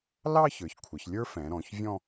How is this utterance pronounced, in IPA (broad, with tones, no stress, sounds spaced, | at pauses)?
l ɑ˥˧ ç ə˞˩˧ ç kʷʰ ə˩˧ ç lʲ ə˞˥ f ɛ̃˩˧ ɾ ɔ̃˩˧ ç vʲ ɔ̃˥˧